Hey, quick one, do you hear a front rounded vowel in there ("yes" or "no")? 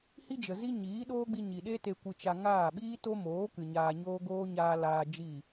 no